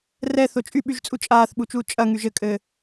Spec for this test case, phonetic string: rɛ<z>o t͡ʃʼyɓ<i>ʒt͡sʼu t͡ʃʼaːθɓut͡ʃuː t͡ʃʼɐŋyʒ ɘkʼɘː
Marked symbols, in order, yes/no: no, no

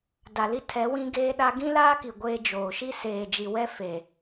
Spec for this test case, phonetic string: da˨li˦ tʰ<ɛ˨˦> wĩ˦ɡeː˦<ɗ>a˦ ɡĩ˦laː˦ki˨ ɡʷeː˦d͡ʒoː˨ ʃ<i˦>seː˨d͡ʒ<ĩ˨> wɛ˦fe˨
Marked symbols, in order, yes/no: yes, yes, yes, no

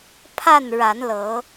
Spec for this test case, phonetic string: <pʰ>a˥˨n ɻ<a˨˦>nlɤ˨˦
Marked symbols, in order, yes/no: yes, yes

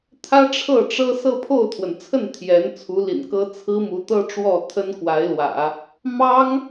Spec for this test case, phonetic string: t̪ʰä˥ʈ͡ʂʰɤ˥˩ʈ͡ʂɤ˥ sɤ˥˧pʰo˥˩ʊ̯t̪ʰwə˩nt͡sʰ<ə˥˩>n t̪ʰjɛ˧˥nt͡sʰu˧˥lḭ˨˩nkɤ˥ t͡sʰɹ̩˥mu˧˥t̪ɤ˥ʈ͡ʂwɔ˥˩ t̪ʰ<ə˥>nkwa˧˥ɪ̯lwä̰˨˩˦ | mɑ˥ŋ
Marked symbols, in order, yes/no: yes, yes

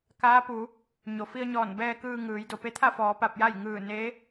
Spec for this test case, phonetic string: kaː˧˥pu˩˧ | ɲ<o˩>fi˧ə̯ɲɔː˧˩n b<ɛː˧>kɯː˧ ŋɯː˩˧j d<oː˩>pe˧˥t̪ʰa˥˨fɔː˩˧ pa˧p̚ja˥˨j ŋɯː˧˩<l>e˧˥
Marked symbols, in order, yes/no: yes, yes, no, no

